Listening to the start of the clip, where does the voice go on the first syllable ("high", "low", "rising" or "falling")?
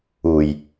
low